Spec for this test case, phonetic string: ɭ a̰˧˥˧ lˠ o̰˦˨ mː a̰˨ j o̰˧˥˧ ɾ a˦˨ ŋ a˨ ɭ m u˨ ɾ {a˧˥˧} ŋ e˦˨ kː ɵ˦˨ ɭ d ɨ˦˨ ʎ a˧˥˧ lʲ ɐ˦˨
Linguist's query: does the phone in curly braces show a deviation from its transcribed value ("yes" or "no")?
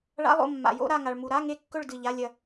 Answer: no